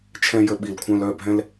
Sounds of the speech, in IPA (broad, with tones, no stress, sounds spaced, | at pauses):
t͡ʃʰ ɛ̃˦ j ə˦ ɓ i˧˩ l kʷʰ œ̃˦ l œ˩˧˩ bʱ ɛ̃˦ l